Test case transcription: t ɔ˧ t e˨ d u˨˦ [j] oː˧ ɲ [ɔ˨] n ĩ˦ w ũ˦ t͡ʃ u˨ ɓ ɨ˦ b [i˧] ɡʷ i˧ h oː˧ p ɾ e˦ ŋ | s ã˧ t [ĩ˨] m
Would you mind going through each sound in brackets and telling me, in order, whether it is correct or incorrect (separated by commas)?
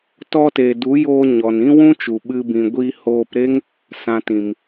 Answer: correct, correct, incorrect, correct